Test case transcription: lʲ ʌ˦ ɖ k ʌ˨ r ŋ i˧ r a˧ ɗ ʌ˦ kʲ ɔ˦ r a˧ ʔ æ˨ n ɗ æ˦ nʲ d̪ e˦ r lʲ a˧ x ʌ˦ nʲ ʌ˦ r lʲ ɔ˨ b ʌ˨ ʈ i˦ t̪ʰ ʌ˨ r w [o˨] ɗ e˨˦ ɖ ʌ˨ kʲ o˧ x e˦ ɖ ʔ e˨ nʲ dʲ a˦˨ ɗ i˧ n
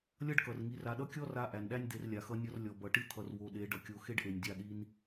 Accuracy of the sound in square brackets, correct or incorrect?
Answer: correct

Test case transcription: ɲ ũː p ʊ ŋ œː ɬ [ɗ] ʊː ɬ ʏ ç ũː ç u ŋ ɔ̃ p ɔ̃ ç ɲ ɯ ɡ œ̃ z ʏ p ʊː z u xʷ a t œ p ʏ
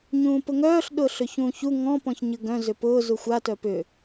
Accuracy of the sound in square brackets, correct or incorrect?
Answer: correct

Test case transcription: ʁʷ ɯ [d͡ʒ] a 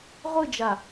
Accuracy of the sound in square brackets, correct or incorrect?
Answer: correct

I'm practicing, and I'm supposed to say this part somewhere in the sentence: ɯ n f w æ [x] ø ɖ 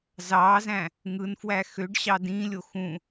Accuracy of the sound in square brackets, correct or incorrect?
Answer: correct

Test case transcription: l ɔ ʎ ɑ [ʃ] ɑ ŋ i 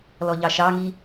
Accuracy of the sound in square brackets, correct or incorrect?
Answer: correct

